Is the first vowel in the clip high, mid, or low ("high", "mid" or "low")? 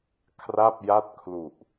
low